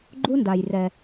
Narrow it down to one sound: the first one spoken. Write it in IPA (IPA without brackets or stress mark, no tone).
ɡ͡ǃ